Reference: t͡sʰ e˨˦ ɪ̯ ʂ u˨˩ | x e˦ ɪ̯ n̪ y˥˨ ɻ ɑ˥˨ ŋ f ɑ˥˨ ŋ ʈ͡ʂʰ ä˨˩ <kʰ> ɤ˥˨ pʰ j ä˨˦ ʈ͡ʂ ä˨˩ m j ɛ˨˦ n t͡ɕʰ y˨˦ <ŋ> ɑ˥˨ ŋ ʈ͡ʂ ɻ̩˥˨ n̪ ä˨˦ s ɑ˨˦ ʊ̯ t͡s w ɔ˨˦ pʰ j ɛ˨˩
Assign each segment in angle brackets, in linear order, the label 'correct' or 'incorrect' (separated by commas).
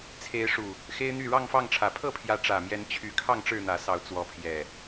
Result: incorrect, incorrect